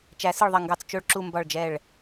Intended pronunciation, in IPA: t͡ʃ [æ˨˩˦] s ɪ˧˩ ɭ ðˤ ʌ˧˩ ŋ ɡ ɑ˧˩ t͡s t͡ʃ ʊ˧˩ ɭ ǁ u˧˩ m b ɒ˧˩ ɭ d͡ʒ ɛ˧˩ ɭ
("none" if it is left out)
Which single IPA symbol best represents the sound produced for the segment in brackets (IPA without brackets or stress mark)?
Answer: æ˨˩˦